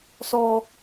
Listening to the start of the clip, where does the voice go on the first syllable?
high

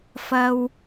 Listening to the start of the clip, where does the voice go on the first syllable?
low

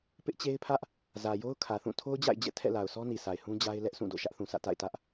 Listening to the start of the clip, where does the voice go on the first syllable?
high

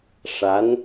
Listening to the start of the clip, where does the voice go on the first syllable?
rising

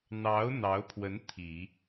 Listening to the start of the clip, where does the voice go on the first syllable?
rising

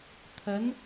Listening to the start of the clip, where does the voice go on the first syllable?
rising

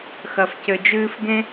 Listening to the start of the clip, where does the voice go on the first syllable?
low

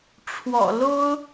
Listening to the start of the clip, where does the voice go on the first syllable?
low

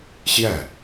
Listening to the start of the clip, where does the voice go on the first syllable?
falling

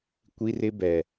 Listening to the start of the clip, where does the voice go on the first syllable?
high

